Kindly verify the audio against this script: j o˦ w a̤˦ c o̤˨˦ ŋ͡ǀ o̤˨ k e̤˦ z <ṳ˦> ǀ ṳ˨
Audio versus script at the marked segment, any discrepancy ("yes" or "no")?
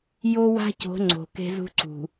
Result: no